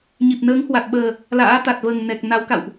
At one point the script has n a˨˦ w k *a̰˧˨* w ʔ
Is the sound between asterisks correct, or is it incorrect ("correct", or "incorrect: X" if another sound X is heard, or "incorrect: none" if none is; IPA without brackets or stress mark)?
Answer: correct